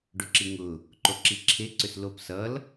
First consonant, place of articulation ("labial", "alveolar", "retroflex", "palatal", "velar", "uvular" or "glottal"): retroflex